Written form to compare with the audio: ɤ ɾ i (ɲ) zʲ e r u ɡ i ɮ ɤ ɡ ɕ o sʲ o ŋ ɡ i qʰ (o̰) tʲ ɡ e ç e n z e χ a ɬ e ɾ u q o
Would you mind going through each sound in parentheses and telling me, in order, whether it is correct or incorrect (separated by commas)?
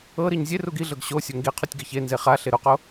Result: correct, incorrect